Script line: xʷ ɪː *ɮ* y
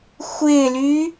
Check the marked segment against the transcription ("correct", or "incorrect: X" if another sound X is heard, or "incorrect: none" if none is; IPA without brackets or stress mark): incorrect: l